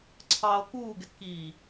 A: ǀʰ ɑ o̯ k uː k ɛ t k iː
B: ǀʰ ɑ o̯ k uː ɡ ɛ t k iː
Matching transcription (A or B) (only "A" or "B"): B